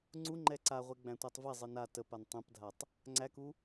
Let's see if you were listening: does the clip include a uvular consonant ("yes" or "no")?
yes